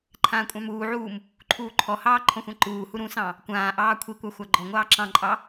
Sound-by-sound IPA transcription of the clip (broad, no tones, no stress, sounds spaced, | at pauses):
ǃʰ ãː kʷʼ ɑ̃ m uː ʕ uː m | ǃʰ uː ǃʰ ɔ h ɑː ǃʰ ɔ̃ xʷ ã ǃ uː h u ɾ ũ s ɑ̃ | kʷ ãː ʔ ɑː kʷʰ i kʷ ɑ xʷ a ɡ͡ǃ ɔ ŋʷ ɑː ǁ ɑ̃ ǃʼ ɑ